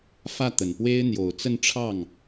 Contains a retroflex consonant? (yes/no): yes